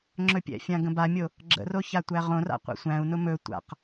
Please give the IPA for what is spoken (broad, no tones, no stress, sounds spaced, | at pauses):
ŋ͡ǁ ɵ pʲ ɛ̰ fʲ ã ɡ ə̃ b a mʲ o | ɡ͡ǁ ə̰ r o ç a tʷ æ ʁ õ r a̰ qʷ a̰ sʷ æ̃ u̯ n ʊ m ɵ tʷ a̰ q